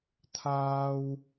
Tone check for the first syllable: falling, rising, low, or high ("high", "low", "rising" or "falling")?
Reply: high